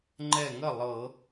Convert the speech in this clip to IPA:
ŋ͡ǃ ɛ˧˩ ŋ ə˥˩ lˠ ɤ˧˩˧

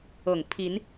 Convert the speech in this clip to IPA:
ɤ˨˩ ŋ pʰ i˨˦ n

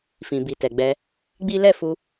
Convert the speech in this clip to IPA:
f ĩ˨ b i˨ t ɛ˨ ɡ͡b ɛ˧ | ɡ͡b i˦ l ɛ˦˨ f u˧

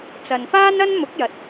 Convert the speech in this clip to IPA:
t͡s ɐ˨ n f aː˥ n ɐ˥ n m ʊ˨˥ k̚ j ɐ˨ t̚

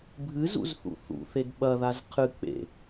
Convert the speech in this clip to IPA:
bʱ ɨ z ṵ z θ ṵ θ ṵ θ e d ɓ ɐ ð a z qʰ ɨ k͡p ḛ

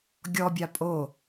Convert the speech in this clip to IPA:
ɡʲ ɔ bʲ a pʼ o

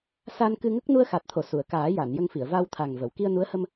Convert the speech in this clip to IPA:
s a˧ n k ɨ˧ ŋ ə˦˥ k̚ n u˧ ə̯ x a˨˩ t̚ t̪ʰ o˨˩˨ s u˨˩˨ ə̯ k aː˨˩˦ j a˨˩˨ n j ə˧ ŋ f i˨˩˨ ə̯ v a˧ w t̪ʰ a˨˩ ŋ v ə˨˩˨ w k i˧ ə̯ n u˧˥ ə̯ h ə˧ m

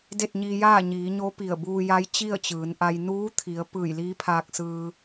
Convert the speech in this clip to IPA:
d e˥˨ t̚ ɲ iː˧ j aː˥˨ ɲ iː˩˧ ɲ o˧˥ p i˧˩ ə̯ b uː˧ j a˧˥ j t͡ɕ i˥˨ ə̯ t͡ɕ ɯː˩˧ n ʔ a˧ j n uː˧˥ t̪ʰ i˩˧ ə̯ p ɯː˧˩ j l iː˧˥ pʰ aː˧ k̚ s ɯː˧

